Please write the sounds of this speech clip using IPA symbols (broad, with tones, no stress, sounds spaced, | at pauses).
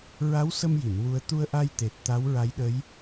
ɹ a˧˥ w s ə˧ m j i˨˩˨ n w u˧ ə̯ t̪ u˧ ə̯ ʔ a˧ j t̪ e˨˩ t̚ t̪ a˧˥ w ɹ a˧˥ j ɗ ə˧˥ j